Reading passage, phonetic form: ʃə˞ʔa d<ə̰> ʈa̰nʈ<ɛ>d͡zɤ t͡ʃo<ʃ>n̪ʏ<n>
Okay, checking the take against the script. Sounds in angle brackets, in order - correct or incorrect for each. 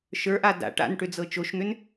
incorrect: a̰, incorrect: ʏ, correct, correct

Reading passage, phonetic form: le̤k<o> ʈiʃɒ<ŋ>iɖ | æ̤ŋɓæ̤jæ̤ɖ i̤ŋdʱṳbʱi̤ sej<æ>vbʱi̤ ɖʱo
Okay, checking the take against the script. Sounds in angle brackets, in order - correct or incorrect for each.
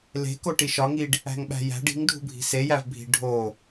correct, correct, correct

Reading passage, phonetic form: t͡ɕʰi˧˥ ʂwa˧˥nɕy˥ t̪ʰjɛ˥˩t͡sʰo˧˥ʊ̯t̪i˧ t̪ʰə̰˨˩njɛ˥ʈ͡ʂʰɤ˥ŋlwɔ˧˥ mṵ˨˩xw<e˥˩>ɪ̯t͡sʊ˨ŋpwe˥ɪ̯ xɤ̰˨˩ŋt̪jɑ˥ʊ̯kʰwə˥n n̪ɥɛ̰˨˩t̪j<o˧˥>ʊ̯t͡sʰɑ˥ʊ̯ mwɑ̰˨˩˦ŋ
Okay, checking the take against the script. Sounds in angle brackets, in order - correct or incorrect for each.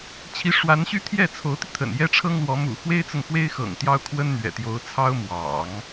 incorrect: e˥, correct

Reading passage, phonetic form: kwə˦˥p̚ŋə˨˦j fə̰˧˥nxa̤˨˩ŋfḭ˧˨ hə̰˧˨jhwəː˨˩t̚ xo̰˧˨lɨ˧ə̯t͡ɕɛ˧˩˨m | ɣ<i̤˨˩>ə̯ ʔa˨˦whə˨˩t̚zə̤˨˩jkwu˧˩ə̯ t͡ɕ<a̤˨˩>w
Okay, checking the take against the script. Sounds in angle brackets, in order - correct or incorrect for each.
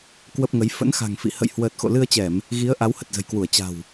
incorrect: i˨˦, correct

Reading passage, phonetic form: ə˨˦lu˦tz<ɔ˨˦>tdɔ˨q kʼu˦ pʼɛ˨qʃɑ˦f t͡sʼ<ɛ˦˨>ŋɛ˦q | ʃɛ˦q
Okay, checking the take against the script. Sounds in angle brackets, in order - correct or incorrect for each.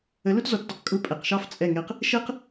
correct, correct

